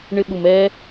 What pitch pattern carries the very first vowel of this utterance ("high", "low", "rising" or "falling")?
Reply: high